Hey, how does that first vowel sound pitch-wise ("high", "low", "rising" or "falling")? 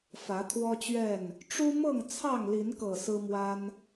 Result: rising